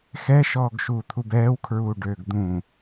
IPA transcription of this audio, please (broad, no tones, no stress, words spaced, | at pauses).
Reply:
xɛʃɔːɡ ʃuːt̪ʰubɛːwkʰɹuː ɖøːɡd̪ũ